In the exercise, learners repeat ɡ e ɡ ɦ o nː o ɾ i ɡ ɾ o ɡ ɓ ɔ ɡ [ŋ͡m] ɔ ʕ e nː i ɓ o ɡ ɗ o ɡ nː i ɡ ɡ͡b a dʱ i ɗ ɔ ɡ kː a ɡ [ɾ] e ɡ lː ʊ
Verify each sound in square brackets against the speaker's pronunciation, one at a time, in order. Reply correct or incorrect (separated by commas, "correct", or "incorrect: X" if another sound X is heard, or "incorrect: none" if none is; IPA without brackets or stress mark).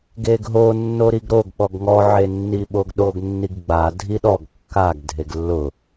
incorrect: ŋ, incorrect: dʱ